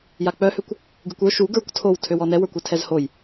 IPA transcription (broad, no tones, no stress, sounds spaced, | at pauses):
j a k͡p œ h ø kʷ | ɡ ɨ kʷ ə˞ ʃ u ɡ ə˞ kʷ tʰ o w tʰ ø w ɔ n ɛ w ə˞ kʷ ø tʰ ɛ z h o j